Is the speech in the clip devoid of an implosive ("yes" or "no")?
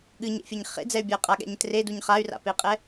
no